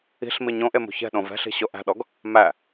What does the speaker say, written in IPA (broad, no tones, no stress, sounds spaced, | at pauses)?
i̤ ɬ m i ɲ õ ʔ e m ṳ ç ɛ̤ ɗ õ v ɛ̤ ɬ i̤ ɕ o ʔ æ̤ ɗ ɔ ɡ | m æ